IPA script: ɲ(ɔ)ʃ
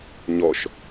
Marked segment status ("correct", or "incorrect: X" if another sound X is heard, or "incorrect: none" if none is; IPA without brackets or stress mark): correct